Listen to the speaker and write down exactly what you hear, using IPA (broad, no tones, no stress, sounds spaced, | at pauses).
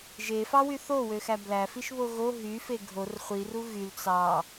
ʒ e f ɑ w y θ o w ø x æ b l æ f i ʃ β o ɣ o ɦ y f e ɡʱ o r χʷ i r u ɣ y l t͡s ɑ